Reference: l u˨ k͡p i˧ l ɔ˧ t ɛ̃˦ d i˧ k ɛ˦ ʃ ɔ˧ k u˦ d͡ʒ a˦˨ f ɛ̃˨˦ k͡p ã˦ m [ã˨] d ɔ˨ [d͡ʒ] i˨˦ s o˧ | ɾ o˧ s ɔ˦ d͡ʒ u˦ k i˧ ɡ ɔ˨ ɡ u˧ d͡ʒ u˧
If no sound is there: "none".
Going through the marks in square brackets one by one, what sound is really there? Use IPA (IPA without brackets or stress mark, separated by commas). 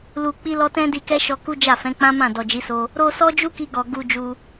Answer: ã˦˨, d͡ʒ